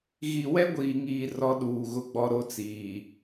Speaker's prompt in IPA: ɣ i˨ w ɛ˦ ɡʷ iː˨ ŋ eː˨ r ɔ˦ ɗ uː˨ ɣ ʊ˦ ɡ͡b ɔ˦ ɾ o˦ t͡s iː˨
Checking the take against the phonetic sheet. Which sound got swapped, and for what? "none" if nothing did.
eː˨ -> iː˨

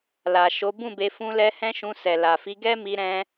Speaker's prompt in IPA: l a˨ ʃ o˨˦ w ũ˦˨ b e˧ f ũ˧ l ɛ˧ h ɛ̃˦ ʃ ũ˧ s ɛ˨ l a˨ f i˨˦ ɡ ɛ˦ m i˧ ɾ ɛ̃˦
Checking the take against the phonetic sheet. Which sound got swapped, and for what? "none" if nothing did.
w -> b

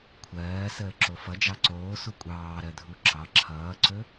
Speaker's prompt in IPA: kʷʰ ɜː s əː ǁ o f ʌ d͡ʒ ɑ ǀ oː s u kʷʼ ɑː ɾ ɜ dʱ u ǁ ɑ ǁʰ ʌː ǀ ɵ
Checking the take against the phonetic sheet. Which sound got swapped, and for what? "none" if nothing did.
none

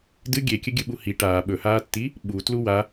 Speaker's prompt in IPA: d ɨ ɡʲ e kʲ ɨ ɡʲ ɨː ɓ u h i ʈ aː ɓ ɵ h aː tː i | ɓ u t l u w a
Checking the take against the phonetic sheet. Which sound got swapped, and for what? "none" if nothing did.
ɨː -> ɨ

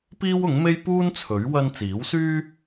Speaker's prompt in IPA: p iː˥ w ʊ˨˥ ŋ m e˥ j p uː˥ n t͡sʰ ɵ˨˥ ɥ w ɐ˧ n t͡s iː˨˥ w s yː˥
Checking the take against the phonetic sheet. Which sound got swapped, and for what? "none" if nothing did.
none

